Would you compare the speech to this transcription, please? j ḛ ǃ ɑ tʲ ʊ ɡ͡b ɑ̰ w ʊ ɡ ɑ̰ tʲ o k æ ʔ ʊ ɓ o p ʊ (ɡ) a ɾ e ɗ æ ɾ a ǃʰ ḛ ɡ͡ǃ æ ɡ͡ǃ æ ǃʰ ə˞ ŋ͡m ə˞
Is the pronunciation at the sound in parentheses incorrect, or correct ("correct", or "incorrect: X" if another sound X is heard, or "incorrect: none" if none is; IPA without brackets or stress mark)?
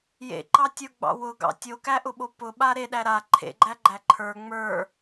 incorrect: ɓ